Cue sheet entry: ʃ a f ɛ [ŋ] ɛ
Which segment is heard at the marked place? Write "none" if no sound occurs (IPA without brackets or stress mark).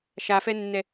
nː